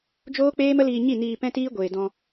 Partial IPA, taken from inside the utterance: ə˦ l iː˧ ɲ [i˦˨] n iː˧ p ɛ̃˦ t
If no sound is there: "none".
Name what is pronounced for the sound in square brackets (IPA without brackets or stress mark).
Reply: i˦˨